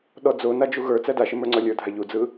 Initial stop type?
implosive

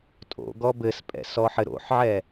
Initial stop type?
ejective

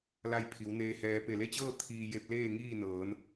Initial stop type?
aspirated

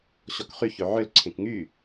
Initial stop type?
plain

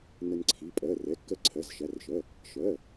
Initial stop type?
click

